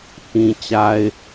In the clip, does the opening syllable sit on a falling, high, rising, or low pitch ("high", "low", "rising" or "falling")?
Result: low